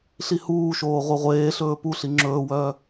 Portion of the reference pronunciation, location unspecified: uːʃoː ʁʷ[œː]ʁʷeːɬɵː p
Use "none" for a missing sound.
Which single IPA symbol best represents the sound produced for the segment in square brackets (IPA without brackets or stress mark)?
œ